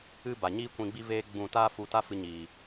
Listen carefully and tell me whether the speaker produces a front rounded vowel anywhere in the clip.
no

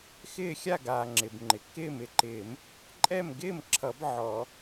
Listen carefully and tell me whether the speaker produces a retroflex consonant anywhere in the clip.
no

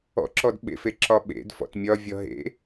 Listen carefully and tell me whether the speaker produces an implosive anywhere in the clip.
yes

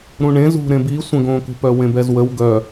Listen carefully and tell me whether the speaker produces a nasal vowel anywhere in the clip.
yes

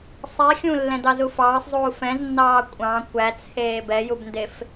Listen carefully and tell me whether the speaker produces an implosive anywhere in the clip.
no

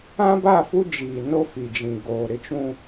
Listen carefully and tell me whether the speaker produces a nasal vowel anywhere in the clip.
yes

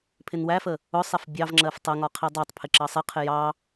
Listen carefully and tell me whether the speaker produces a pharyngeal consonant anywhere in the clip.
no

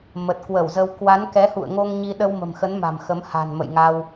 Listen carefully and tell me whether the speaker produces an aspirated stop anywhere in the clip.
no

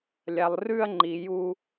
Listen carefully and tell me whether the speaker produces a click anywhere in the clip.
yes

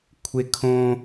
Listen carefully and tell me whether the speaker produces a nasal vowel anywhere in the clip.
yes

